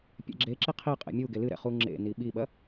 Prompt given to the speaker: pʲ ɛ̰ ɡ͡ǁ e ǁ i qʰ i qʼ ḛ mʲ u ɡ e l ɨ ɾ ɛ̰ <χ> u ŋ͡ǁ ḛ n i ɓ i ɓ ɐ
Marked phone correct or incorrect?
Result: correct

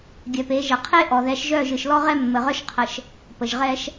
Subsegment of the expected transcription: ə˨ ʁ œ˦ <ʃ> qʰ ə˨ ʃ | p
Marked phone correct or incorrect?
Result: correct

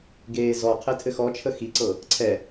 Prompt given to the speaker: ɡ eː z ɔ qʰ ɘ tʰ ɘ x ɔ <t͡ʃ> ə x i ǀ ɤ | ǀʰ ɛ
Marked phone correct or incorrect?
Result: incorrect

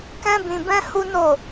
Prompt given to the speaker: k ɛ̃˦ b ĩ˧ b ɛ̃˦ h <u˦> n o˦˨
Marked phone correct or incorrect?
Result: correct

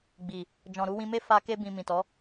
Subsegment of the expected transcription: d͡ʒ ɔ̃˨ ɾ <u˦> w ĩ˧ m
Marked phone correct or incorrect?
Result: incorrect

